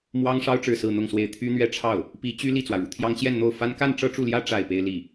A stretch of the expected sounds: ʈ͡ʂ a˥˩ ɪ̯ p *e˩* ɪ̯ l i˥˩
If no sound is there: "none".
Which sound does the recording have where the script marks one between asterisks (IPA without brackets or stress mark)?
e˥